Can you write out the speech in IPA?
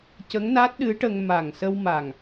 c ə˧˥ ŋ n a˦˥ t̚ ɗ ɨ˧˥ ʈ ə˧ ŋ m a˨˩ ŋ s ə˧ w m a˨˩ ŋ

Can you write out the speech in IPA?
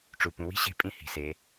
ʈ͡ʂ u˩ p ũ˩˧ w i̤˥ ɕ e̤˧˥ pʼ ĩ˧ h i̤˩ s e˩˧

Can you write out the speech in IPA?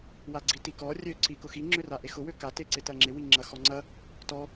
w a ɡ͡ǀ i t i k ɔ rʲ ø ǀ i k ʊ x i ŋ͡ǁ ʏ r a ʔ e x ʊ w ø k a t e ǀ ɪ t ɐ ŋ͡ǁ ɪ w i ŋ͡ǁ ɐ x ɔ ŋ͡ǀ ɐ | t ɔ

